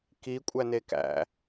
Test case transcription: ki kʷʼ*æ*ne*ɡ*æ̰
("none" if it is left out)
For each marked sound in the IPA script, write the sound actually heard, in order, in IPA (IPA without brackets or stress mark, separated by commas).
æ, k